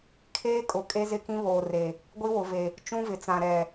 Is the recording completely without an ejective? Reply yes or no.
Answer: no